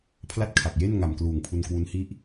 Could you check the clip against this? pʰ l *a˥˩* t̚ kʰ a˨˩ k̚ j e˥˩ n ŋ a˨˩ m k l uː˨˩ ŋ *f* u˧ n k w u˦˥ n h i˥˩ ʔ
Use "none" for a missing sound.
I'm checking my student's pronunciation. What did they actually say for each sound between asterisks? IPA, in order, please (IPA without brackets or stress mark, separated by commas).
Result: a˥˩, pʰ